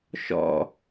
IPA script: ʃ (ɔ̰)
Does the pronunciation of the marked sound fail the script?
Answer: no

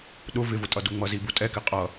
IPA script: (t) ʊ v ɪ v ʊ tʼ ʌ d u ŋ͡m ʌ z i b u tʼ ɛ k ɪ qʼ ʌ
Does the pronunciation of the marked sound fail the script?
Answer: yes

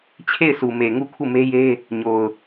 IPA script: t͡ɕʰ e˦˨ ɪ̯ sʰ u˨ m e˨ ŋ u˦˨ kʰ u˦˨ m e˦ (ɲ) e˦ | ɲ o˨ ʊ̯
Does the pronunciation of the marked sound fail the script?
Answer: yes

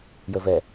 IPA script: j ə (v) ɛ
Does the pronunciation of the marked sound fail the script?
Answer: no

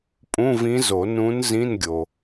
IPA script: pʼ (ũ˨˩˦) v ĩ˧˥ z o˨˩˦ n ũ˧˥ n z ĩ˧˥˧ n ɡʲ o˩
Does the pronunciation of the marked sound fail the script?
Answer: yes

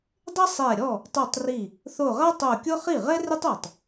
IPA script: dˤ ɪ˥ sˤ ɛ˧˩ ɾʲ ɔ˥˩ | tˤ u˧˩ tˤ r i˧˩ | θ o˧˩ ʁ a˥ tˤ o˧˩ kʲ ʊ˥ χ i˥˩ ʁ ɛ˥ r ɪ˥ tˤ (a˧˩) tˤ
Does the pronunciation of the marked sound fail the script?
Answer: no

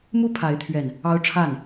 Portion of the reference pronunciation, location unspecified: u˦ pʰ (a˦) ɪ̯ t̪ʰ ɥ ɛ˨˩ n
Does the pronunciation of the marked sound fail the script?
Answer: yes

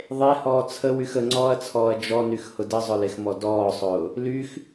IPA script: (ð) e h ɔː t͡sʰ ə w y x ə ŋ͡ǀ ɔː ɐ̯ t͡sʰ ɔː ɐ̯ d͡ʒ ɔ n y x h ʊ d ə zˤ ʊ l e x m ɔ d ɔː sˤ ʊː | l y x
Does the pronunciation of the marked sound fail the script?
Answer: yes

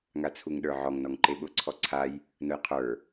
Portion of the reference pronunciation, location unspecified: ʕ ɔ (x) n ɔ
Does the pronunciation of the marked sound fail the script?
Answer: yes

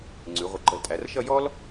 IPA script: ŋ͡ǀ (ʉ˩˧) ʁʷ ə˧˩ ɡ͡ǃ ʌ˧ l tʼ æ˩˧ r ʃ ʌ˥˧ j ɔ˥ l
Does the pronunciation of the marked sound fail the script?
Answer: no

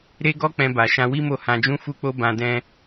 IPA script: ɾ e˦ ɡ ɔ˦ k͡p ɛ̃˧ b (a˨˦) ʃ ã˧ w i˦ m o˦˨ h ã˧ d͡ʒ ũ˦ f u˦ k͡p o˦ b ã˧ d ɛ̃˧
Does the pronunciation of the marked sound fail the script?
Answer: yes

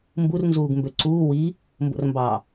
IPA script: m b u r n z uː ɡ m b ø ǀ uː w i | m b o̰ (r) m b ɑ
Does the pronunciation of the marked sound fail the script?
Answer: no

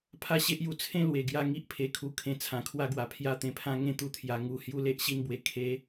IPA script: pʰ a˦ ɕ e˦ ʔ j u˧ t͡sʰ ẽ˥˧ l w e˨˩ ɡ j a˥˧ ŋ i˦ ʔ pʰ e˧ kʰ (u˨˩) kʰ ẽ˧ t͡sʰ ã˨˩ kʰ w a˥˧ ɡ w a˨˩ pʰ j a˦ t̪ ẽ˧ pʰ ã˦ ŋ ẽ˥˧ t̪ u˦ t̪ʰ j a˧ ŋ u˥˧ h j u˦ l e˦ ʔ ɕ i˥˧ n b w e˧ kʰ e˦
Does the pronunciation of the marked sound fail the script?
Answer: yes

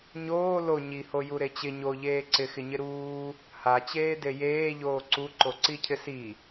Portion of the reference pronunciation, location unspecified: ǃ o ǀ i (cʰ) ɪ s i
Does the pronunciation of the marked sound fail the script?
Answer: no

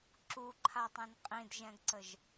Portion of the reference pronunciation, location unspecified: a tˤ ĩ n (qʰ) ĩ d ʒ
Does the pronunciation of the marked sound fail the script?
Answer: yes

